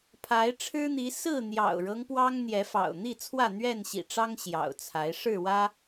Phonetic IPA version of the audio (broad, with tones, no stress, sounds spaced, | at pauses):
pʰ a˨˦ ɪ̯ ʈ͡ʂʰ ɻ̩˦ n̪ i˨˦ s ɹ̩˥˨ n̪ j ɑ̰˨˩ ʊ̯ ɻ ɤ˦ ŋ p w ɑ˦ ŋ n̪ j ɛ˨˦ f ɑ̰˨˩ ʊ̯ n̪ i˥˨ t͡sʰ w ä˥˨ n̪ ɥ ɛ˥˨ n ɕ ḭ˨˩ ʈ͡ʂ ɑ˦ ŋ ɕ j ɑ̰˨˩ ʊ̯ t͡sʰ a˨˦ ɪ̯ ʂ ɻ̩˥˨ w ä˦